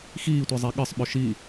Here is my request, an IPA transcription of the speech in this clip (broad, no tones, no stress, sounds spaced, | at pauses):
x iː tʷ i zˤ i ɠ ɨ sˤ ɓ ɵ ʃ i